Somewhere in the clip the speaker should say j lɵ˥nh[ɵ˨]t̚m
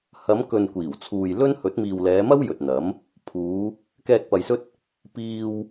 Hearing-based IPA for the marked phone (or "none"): ɵ˨˥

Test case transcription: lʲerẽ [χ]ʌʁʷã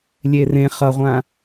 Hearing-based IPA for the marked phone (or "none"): χ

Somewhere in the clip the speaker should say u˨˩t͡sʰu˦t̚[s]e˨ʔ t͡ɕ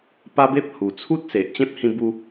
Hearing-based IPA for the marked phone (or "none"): s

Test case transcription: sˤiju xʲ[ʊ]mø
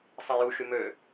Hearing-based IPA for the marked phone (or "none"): ʊ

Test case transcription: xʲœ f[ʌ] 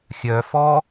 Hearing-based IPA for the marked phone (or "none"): ɔ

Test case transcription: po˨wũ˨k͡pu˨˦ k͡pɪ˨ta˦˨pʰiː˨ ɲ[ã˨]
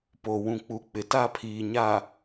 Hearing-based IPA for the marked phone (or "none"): a˨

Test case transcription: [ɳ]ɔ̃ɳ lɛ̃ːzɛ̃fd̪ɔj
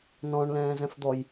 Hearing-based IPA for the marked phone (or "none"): n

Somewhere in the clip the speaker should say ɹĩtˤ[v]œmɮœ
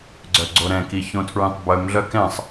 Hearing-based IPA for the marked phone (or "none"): b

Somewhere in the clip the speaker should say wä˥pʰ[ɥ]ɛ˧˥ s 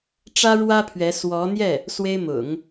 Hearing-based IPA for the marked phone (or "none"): ɥ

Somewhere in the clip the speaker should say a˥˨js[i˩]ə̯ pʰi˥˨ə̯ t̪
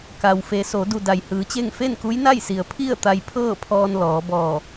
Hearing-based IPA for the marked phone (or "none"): i˩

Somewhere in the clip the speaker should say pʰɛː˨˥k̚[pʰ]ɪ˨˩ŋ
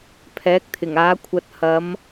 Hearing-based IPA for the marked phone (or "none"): t̪ʰ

